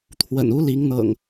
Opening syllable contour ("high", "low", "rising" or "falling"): low